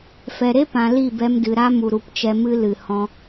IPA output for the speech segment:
f ɛ˨ ɾ e˦ p ã˨ l i˦˨ b ɛ˧ m d ɨ˨ ɾ a˦ m u˨ ɾ u˨ p t͡ʃ ɛ˧ m ɨ˦ l ɨ˨ h ɔ̃˧

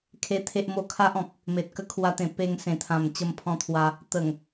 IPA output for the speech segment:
kʰ e˦ t̪ʰ e˦ ʔ m o˥˧ kʰ a˦ ʔ ɔ̃˨ k̚ | m e˨ t̚ k ə˧ kʰ w a˧ t̪ ẽ˨˩ p e˧ ŋ s ẽ˨˩ t̪ʰ ã˨˩ m t͡ɕ ə˧ m pʰ ɔ̃˧ t̪ʰ w a˧ | t̪ ə˨˩ ŋ

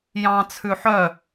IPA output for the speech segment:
j ɑ̃ t͡sʰ ʉ ħ œ

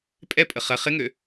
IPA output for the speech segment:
pʼ ɛ pʼ ə χ ɐ χ ɪ ŋ ø

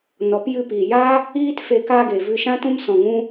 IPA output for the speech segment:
n ɔ˨˦ p j ɨ˧ p iː˨ j aː˦ | iː˦ t f e˧ k aː˧ ɡ e˨ v ɨ˧ ʃ ã˦ t ũ˦ m s ɔ̃˧ ŋ ũ˦

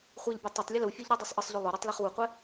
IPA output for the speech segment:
χʷ ɛ ʎ bʲ ɤ tˤ ʊ tˤ lʲ ə l u fʲ ə˞ ʎ ɾ ɤ dˤ y sˤ ʔ ə sˤ ʎ y lˠ o ɾ ə˞ tˤ l ɛ χ w u qʷ ɛ

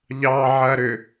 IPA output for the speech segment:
ʎ ɑ ʕ ɐ ɾ ʏ

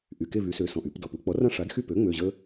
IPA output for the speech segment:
ʔ y˩˧˩ k e˦˨ v y˩˧ s ø˩˧ s ɔ̃˩ ʔ y˩˧ p d ɔ˩ p u˩˧ k͡p ɔ˩˥ r ã˦ ʂ a˩˥ d x y˦˨ p ø˩˥ ŋ͡m ø˩˧˩ ʑ ə˦

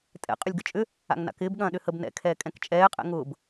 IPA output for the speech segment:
tʼ ɛ̰ qʼ ʏ lʲ ɡ ə t͡ʃʼ ʏ | a̰ ŋ n a̰ k ɪː b ɠ ɐ̃ː ɗ ʏ h ə b n ɛ̰ kʰ ɛː kʼ ɛ̃ k t͡ʃʼ ɛː qʼ ɛ̰ ŋ ʊː b

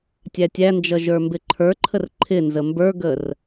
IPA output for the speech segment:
tʲ æ tʲ æ n d͡ʒ ʌ ʒ ə˞ m b ɪ ǃʰ ə˞ ǃʰ ə r ǃʰ ɪ n z ə m b ə˞ ɡ ə r

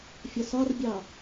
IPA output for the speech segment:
fʲ ɒ s ɒ r bʲ ɑ

